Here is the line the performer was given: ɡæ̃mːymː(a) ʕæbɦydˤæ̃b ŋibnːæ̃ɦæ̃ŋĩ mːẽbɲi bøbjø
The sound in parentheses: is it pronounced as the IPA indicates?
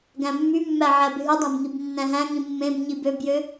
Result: no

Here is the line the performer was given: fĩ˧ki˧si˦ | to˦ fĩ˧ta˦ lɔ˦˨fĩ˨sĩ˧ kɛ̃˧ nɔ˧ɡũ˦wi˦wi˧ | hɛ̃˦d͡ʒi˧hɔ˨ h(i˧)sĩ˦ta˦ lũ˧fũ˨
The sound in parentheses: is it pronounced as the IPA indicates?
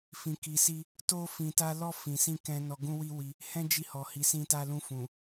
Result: yes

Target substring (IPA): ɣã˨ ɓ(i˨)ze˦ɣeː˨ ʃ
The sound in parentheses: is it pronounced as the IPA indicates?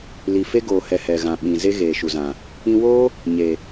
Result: no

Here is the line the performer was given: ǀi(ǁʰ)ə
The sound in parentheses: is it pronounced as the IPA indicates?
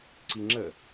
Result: no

